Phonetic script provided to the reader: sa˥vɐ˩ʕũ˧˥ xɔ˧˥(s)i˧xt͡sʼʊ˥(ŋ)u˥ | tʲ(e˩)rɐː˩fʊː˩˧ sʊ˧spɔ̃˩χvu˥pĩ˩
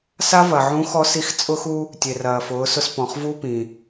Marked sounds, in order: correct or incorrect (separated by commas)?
correct, incorrect, correct